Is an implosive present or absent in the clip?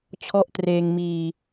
absent